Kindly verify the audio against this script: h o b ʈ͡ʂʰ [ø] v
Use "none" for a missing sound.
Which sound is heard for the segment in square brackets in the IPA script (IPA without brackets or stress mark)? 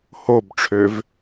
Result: ø